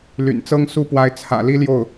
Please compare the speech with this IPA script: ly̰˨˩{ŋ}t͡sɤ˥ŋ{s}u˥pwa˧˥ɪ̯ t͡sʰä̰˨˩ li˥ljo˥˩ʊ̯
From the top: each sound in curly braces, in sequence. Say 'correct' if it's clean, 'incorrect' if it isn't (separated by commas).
incorrect, correct